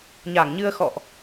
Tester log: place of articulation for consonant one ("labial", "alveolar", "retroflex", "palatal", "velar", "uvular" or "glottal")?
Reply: palatal